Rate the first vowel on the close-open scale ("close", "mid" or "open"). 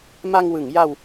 open